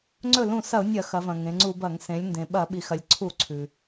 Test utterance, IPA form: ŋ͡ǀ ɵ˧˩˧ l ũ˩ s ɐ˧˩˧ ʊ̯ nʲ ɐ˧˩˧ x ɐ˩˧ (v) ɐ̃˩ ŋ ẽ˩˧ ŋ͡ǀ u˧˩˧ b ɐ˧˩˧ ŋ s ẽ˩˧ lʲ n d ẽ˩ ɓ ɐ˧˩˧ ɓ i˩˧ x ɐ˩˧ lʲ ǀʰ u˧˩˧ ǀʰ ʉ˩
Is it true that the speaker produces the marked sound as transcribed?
yes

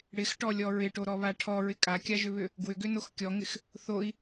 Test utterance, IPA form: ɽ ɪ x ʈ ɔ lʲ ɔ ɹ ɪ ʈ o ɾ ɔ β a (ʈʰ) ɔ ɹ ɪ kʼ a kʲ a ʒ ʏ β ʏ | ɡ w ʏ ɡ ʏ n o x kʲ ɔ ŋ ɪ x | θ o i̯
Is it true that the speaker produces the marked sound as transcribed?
yes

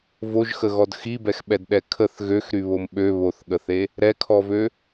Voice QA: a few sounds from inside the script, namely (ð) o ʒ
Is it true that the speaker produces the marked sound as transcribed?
no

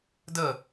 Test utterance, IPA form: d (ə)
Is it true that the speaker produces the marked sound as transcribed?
yes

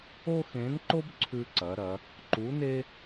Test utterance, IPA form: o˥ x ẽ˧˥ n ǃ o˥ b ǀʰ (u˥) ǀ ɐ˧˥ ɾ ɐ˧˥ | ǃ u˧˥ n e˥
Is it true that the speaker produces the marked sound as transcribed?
no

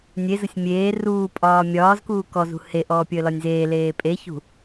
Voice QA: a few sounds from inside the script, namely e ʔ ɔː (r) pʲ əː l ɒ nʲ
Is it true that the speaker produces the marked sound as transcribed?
no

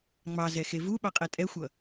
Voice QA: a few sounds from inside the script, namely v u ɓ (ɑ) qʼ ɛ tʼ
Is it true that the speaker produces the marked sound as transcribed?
yes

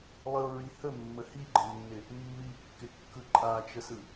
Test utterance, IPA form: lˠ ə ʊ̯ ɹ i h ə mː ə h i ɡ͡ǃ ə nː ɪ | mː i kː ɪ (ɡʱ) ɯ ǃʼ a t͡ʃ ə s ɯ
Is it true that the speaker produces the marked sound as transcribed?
no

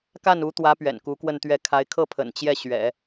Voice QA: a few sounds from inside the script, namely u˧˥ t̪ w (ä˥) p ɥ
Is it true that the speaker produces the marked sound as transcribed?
no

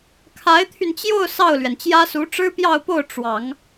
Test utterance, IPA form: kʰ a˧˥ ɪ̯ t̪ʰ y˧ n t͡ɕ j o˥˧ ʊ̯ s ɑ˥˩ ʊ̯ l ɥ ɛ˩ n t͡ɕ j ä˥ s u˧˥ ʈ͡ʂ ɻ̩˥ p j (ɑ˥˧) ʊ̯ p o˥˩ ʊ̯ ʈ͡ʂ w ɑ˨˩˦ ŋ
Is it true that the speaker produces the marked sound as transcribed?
yes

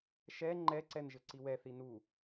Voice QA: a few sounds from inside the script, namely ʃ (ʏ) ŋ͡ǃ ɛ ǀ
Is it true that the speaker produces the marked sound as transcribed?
no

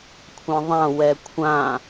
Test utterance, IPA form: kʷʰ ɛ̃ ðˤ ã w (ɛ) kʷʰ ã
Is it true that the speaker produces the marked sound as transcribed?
yes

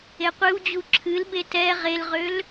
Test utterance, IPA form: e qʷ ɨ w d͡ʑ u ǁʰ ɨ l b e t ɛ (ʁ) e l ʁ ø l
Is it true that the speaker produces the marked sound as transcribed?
yes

